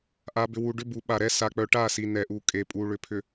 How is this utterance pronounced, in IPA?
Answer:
ʔ a˨ b ʏ˨ w u˨ ɖ ʏ˦ b u˨˦ ɓ a˨ ɾ ɛ˦ s a˨ k͡p œ˨ ʈ a˦˨ s i˨ n ɛ˨ ʔ u˨ kʼ e˨ pʼ u˨ ɭ ʏ˨ pʰ ʏ˨

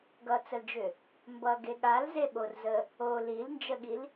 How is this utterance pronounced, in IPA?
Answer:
ɡ ʌ t͡s ə l d͡ʒ ʏ | m b ʌ ɡ e ɠ a l z e ɓ o r z ə | o l i l n d͡ʒ ə ɠ i l

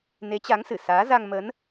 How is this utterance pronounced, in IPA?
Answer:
n e˨˦ t͡ɕ a˨˦ ŋ s ɨ˧˩ s aː˨˦ z a˧ ŋ m ə˨˦ n

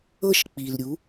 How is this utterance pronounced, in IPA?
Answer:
ɤ˥˩ ʃ k͡p i˩ l ɾʲ u˩˥

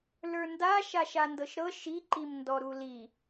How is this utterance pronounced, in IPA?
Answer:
l ə˞ n d a ʃ a ʃ a n d ɤ ʃ ɾ ɤ ʃ i ǃ i m n d ɔ ɾ u l i

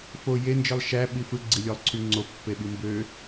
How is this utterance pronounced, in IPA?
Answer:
f o j e n d͡ʒ ɯ lˠ ʃ æ ɓ i f ɯ ɡ͡ǀ i lʲ o lˠ ǀʰ y ŋ͡ǀ o pː e ɓ i m b ø

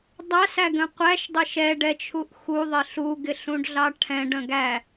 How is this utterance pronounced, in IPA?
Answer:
dˤ æ s æ ɡ ə̃ qʷ æ ʃ dˤ ɪ ʃ ɛ ɖ ɛ t͡ʃʰ u ʔ x u ðˤ ɪ ɬ u ɡ ɪ ɬ ũ ɖ ɮ ɑ ʈʰ ɛ̃ ɖ ə̃ ɡ æ

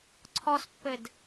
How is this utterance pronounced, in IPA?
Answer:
ǀʰ ɔ s pː ɘ d

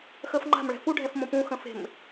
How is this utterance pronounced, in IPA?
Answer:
x əː f ŋ͡ǃ a̤ m ɭ ɛ̤ f u ɖʱ ɛ f m õ p ũ x ə̃ f e̤ m

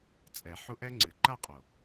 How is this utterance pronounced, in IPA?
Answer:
t͡sʼ ɛ˨˩˦ ħ u˦˥ ʔ ɛ˦˥ ŋ͡ǀ ɨ˨˩ ǃ a˥˧ qʼ o˨˩

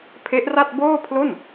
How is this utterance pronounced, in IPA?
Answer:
pʰ e˦˥ ʔ r a˥˩ t̚ b oː˥˩ pʰ l o˥˩ n

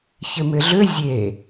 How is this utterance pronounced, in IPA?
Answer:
ç ɪ m ɪ ɮ ʏ zʲ e

